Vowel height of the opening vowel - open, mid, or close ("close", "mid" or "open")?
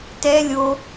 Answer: mid